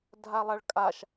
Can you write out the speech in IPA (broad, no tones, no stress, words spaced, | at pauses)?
dʱalˠaɭkʼaʃ